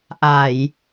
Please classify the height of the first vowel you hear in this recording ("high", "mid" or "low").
low